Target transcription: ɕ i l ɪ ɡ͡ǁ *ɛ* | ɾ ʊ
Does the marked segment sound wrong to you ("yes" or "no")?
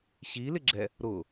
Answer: no